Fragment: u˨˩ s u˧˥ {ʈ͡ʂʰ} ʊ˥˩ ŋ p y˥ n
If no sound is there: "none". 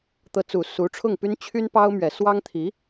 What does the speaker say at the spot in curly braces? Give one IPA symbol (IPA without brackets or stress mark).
ʈ͡ʂʰ